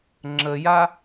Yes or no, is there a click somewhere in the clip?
yes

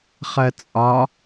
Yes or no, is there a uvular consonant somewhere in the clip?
yes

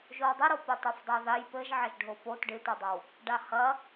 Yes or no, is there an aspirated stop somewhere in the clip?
no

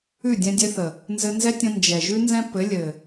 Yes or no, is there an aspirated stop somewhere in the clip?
no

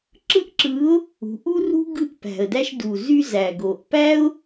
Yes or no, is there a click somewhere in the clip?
yes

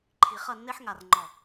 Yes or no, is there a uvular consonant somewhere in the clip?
yes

